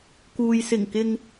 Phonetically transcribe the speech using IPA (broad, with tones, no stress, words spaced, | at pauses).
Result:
kuː˨j sɪ˨˩ŋkɪ˨ŋ